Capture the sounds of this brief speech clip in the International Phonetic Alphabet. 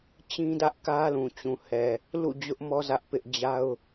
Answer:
t͡ɕ ĩ˦ d ä˦ ʔ k ä˦ l ũ˨ t͡ɕ ũ˨ h ɛ˨ | l ṵ˦˨ d͡ʑ ʊ˦ ʔ m ɔ˦ z ä˦ ʔ p ɪ˦ ʔ d͡ʑ a˦ ʊ̯

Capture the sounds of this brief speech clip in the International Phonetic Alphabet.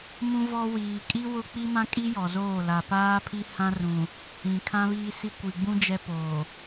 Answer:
m ũ˦ v ɔ˦ w iː˨ kʼ i˦ w ʊ˦ k͡p i˦ m ã˦ kʼ i˦ j ɔ˨ z oː˦˨ l a˨ p aː˦ pʰ i˦ h ã˦ r ũ˨ | ĩ˨ kʰ ã˦ β iː˦ s i˦ kʷ i˨ ɡ͡b ũ˦ d͡ʒ ɛ˦ p oː˨

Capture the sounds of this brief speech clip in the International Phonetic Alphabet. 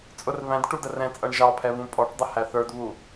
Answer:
t͡sʼ ʊ r β æ̃ d ʈ u d ə r ɛ̃ t͡sʼ ʌ ɳ ʒ ɑ pʰ ɛ β ũ pʼ ɔ ʈ dˤ ə h æ θ ə˞ d β u

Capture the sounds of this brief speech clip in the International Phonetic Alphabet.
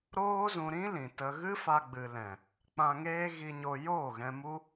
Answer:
ɾ oː˦ z ũ˧ ɾ ĩ˦ l ĩ˨ t ə˧ ɣ ɨ˦ f a˧ ɡ͡b ɨ˨ l ɛ̃˨ | k͡p ã˧ ŋ eː˦ ɣ i˧ ɲ o˧ j oː˦˨ ɣ ɛ̃˧ m u˦

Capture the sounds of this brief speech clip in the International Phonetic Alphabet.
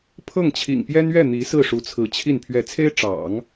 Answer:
pʰ ɤ˥˩ ŋ t͡ɕʰ ḭ˨˩ ŋ p j ɛ˥ n ɥ ɛ˥˩ n̪ i˧˥ s ɹ̩˥˩ ʂ u˧˥ t͡sʰ ɹ̩˧˥ t͡ɕʰ i˥˩ n pʰ ɥ ɛ˧˥ t͡sʰ e˥ ɪ̯ ʈ͡ʂ ɑ̰˨˩˦ ŋ

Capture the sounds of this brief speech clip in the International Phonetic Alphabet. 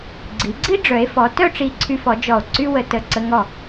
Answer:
ɡ͡ǀ i˩˧ ɡ͡ǀ i˥ ɖ͡ʐ œ˩˧ e̯ f ɔ˩˧ t œ˥˧ ʈ͡ʂ i˧˩ ǀʰ y˧ f ɔ˩˧ d͡ʒ ɔ˧˩ o̯ ǀ y˥ w ə˧ t ə˧˩ ǀ ə˧ ŋ ɔ˧˩

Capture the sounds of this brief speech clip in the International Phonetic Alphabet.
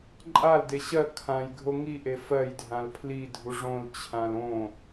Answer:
ǃʼ a l d e ɕ ɜ kʰ ã j ɡʱ o ŋ i ʔ e f ɜ j dʱ ã l pʰ l i dʱ u ʐ õ l t͡ɕʰ ã l õ

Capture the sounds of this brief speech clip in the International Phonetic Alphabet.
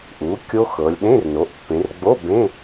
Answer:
ʔ u˩˥ kʲ o˦˥ x ɤ˩˧ lʲ ɗ ẽ˧˥˧ r n o˩˥ ʔ pː ẽ˩˧ r ɡ͡b o˧˥˧ b ẽ˧˥˧

